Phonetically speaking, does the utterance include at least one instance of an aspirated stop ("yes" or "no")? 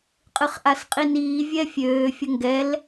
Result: no